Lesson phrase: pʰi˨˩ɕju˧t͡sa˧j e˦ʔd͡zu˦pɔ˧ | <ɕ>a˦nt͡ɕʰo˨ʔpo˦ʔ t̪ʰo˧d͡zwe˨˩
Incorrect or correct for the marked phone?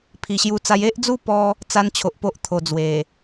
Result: incorrect: t͡s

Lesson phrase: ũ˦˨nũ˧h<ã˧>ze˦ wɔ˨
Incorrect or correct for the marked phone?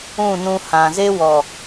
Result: incorrect: ã˨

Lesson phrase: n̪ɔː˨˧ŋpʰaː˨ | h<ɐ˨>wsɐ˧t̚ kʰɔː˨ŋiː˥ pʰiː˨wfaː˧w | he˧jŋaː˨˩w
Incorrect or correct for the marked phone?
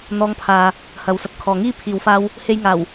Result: incorrect: ɐ˨˥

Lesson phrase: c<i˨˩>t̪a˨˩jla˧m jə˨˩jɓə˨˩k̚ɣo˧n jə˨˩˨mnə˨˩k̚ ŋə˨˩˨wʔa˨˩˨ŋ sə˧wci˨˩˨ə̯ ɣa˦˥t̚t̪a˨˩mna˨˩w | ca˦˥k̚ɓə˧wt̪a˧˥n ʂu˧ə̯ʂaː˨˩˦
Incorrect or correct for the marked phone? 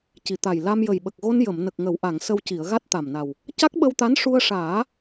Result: correct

